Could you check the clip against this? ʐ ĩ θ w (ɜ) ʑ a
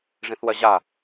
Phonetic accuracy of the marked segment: correct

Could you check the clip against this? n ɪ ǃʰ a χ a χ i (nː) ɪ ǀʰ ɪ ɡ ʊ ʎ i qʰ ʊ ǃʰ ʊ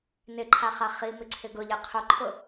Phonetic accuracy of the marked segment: incorrect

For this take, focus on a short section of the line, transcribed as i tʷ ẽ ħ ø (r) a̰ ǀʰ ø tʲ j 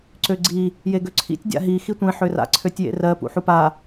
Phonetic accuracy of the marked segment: correct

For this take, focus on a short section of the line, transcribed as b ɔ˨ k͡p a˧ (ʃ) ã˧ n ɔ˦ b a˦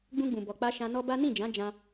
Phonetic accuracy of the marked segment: correct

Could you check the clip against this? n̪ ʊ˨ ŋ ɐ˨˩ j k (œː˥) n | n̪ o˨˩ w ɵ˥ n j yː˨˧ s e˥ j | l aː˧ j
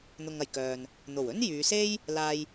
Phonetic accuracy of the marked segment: incorrect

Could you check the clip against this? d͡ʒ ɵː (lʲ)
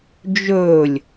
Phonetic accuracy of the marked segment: correct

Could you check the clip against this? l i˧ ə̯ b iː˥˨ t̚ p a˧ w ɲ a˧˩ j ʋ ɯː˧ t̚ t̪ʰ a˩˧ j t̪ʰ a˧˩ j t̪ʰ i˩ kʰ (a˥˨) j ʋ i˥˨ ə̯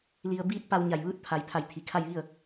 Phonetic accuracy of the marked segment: correct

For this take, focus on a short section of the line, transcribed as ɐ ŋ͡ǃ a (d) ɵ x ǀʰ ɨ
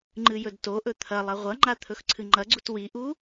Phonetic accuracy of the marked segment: incorrect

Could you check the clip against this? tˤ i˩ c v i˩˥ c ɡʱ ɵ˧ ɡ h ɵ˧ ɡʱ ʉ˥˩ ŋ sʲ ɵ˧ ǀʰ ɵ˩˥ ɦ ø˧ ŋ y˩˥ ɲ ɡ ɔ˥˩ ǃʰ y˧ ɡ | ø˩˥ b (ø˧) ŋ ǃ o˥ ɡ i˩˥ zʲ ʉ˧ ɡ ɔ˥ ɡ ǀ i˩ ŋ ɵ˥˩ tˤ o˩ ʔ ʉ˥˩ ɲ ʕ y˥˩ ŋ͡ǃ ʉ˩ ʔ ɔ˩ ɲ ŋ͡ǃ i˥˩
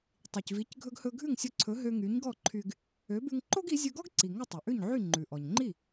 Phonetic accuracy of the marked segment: incorrect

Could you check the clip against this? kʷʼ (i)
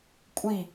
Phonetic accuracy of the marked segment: correct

